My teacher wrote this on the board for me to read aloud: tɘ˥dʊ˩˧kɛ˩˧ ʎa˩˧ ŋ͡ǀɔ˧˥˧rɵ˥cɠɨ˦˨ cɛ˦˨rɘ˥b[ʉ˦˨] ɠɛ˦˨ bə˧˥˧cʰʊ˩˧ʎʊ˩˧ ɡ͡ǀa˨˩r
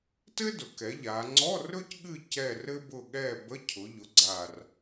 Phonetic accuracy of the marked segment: incorrect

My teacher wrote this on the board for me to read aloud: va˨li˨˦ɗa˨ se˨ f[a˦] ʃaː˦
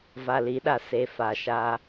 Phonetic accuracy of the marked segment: incorrect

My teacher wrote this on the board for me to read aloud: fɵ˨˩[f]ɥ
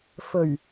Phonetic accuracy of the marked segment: incorrect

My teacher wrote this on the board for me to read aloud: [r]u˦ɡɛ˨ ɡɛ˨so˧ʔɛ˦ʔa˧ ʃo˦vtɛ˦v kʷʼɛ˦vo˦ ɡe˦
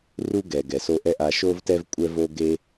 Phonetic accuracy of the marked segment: correct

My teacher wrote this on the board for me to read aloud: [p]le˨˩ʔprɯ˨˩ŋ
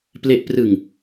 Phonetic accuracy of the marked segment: correct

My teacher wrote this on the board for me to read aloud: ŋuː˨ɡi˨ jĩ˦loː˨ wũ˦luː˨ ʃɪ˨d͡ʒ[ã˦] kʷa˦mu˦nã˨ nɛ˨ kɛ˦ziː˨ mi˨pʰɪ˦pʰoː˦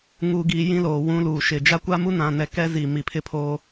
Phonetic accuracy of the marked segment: incorrect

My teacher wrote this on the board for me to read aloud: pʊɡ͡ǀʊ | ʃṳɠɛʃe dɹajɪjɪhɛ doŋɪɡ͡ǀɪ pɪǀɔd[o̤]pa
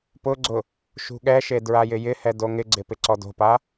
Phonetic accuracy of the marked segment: correct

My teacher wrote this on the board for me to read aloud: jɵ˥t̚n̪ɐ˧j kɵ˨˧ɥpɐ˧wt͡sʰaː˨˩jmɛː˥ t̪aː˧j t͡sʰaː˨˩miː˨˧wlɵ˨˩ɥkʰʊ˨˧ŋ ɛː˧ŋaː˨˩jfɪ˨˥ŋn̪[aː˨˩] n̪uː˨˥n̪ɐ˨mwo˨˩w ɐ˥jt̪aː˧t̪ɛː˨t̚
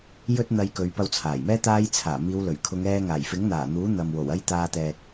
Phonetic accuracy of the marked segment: correct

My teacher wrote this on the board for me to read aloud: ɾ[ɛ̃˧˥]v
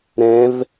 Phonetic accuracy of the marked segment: correct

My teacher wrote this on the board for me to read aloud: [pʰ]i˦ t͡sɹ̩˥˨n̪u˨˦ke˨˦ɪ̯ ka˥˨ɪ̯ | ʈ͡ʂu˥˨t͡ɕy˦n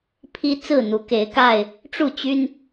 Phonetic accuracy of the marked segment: correct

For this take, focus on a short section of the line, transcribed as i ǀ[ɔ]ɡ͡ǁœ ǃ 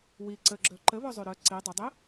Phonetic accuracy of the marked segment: incorrect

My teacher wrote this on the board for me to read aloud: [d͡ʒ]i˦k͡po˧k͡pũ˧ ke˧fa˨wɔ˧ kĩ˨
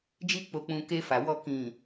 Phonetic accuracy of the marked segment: correct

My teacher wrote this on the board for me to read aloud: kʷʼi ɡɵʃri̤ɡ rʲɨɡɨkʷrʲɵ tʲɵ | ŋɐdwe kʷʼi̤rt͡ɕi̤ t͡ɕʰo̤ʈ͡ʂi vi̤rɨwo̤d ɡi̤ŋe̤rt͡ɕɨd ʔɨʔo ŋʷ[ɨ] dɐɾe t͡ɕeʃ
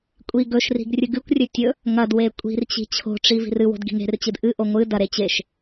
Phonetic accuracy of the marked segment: correct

